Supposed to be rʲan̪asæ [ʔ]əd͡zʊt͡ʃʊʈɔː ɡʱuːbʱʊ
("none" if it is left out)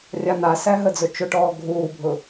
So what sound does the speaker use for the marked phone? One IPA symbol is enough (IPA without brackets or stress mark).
ɦ